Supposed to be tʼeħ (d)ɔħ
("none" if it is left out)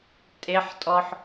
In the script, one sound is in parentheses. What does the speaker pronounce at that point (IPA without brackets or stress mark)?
tʼ